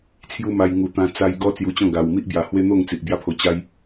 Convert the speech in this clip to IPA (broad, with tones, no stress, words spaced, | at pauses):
t͡sʰju˦ma˧j ŋu˨˩t̪ã˧ t͡sa˧jɡɔ˦ t͡sju˧t͡ɕɔ̃˥˧ ɡa˧w mi˦ʔbja˨˩hwe˦n̪o˥˧ŋ t͡si˨ʔbja˥˧pʰo˧ t͡ɕa˦j